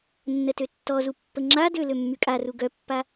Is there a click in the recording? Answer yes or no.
yes